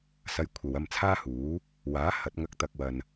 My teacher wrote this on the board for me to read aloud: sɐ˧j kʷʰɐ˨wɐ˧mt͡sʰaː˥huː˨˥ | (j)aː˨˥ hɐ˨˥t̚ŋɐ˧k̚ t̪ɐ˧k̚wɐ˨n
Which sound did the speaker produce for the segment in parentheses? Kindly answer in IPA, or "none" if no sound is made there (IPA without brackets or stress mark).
w